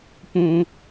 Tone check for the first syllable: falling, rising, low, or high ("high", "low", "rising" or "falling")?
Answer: high